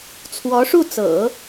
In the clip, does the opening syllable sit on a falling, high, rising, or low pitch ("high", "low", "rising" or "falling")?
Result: rising